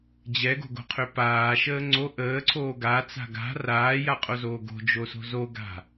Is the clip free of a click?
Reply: no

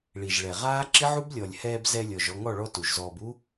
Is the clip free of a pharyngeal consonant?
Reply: no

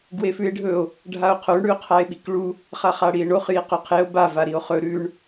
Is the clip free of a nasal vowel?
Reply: yes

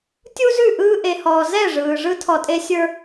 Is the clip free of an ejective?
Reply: no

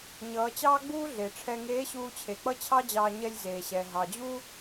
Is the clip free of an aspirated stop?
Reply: no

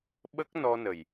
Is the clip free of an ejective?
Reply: yes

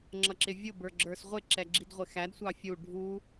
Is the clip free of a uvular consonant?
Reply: no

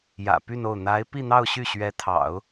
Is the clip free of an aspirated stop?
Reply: no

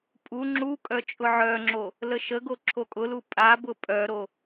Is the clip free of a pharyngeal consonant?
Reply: no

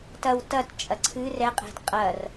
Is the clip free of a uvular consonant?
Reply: no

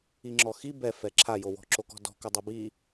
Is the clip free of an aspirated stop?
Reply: no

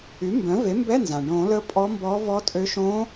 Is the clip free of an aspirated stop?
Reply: yes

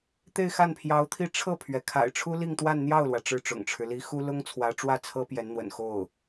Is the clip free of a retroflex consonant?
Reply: no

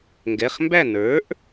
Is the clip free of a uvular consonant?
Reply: no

